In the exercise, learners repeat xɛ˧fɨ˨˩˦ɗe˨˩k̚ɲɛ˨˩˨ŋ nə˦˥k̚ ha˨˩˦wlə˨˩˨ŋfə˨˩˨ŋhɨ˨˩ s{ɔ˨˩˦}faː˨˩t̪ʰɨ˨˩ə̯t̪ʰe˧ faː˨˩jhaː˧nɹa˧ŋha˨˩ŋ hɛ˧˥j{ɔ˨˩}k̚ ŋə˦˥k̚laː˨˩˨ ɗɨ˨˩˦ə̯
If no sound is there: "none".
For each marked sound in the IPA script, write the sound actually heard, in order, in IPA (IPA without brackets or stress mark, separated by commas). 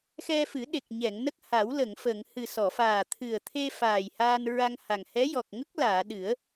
ɔ˨˩˨, ɔ˨˩